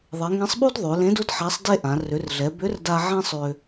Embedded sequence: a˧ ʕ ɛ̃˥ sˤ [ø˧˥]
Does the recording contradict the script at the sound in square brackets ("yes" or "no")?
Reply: yes